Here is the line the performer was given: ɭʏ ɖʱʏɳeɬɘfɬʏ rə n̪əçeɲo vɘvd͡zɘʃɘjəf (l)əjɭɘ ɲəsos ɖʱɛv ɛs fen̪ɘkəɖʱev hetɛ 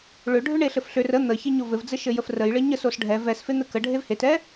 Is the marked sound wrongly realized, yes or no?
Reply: yes